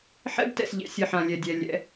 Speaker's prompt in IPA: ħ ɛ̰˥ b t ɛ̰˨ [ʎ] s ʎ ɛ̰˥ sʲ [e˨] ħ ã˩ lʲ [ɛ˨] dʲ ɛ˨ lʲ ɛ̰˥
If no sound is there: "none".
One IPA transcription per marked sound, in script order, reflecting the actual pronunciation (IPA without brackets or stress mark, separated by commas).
none, ɘ˨, ɛ˨